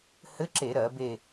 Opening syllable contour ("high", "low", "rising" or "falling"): rising